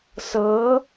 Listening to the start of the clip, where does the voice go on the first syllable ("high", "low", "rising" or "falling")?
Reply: rising